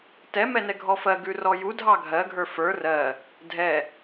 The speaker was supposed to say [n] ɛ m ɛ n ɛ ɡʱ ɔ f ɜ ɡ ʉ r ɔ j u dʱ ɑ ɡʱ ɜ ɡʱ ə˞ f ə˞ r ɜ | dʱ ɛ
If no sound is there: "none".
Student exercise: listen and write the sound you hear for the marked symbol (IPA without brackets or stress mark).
t